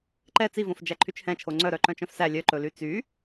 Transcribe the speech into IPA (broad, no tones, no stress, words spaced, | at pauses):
ǃɛ t͡sivõf d͡ʒæǃʰyt͡ʃhɛ̃t͡ʃʰo ŋ͡ǀœ ɾœǃœ̃t͡ʃœ̃fsæ lʲœǃɵly t͡sy